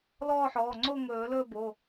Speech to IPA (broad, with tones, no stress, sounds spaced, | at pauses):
l ɔː˥˧ ħ ɔː˩˧˩ ŋ͡ǀ oː˥˧ ŋ ɵː˨˩˦ l ɵː˥˧ b o˩˧˩